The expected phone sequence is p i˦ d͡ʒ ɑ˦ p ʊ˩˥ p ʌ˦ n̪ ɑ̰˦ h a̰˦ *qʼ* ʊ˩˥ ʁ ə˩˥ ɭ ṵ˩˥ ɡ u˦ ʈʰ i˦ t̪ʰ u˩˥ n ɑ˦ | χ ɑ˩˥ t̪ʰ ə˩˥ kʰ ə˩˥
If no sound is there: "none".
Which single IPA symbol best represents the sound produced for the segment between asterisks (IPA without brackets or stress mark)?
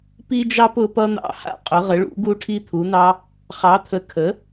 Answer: qʼ